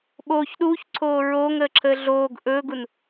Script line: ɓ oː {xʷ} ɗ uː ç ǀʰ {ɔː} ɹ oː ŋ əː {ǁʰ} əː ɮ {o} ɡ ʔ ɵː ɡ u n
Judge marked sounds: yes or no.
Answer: no, no, yes, no

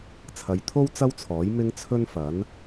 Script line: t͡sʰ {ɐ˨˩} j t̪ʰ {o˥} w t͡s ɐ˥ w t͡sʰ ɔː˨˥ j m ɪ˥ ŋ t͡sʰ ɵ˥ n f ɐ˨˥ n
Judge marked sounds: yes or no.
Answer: no, yes

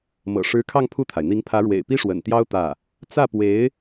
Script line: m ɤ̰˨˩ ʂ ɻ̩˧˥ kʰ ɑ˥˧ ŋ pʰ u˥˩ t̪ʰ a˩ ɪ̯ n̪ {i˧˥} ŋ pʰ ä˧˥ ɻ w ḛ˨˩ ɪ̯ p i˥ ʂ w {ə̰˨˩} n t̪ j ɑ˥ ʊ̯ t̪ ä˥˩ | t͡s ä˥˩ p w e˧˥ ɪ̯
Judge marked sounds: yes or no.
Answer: yes, yes

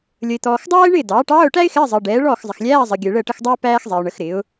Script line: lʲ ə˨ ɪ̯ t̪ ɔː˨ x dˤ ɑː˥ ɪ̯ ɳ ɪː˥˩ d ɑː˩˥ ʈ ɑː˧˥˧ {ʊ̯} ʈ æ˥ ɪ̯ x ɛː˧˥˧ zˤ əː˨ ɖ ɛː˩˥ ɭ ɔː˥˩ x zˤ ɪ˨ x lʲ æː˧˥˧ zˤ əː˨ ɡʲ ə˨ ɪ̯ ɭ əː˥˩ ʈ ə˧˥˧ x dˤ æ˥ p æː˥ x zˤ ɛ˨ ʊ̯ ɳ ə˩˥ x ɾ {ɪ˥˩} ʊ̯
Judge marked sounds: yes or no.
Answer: yes, no

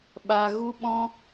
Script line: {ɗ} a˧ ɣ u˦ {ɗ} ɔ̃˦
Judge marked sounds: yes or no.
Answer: no, no

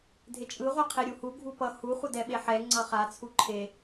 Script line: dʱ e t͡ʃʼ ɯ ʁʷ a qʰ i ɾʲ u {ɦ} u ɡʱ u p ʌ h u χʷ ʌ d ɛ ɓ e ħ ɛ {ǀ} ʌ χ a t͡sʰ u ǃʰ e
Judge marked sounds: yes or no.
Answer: no, no

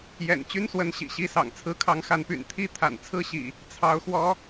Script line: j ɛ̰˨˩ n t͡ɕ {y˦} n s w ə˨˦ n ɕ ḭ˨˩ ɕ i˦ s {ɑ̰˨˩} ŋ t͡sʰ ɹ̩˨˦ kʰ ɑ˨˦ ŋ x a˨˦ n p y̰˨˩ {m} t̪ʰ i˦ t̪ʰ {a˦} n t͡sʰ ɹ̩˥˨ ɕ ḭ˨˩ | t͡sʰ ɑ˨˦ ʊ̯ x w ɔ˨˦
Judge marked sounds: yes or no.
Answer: yes, yes, no, no

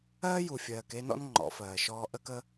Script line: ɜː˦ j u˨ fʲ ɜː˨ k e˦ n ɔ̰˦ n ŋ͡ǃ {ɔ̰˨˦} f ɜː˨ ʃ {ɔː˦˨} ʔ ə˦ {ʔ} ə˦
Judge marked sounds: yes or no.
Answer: yes, no, no

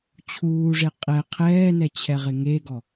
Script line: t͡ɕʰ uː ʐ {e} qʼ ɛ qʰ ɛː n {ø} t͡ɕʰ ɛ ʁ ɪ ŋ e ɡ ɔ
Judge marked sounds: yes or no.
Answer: yes, no

